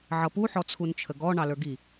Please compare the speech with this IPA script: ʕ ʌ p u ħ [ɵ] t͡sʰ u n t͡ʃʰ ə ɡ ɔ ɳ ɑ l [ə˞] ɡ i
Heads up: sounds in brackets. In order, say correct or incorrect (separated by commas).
incorrect, correct